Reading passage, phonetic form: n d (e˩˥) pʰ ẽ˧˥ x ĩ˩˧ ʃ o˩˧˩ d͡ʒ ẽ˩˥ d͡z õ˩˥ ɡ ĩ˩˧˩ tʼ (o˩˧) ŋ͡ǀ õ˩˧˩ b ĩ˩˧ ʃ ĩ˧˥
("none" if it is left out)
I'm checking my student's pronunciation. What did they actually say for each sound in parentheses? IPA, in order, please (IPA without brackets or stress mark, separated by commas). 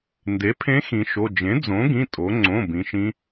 e˩˥, o˩˧